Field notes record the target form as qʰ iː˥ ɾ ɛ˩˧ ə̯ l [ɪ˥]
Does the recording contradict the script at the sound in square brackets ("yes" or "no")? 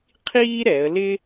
no